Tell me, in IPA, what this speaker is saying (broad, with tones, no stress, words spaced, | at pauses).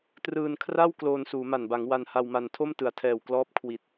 trɯː˧nkʰra˥˩w kloː˧nsuː˩˦ma˨˩nba˩˦ŋ wa˧nha˧wma˧n tʰo˥˩mtɯ˩˦a̯tʰɛː˨˩w klɔː˦˥p̚kʰwi˨˩t̚